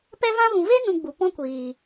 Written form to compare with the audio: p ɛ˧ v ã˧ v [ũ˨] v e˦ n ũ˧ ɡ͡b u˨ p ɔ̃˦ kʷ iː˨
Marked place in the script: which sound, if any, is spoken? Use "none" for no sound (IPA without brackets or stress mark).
ũ˨